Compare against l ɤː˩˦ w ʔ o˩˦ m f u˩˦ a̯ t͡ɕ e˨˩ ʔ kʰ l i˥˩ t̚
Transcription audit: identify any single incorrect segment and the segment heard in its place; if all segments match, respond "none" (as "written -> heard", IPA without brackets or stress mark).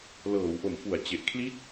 none